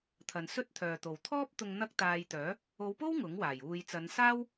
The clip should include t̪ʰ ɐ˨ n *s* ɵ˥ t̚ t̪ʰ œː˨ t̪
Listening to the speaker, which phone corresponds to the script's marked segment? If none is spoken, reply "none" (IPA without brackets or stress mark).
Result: s